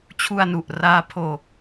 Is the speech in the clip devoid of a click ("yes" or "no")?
yes